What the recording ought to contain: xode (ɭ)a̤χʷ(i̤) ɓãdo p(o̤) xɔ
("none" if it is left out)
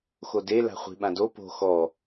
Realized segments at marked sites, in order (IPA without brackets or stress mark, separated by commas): l, i̤, o̤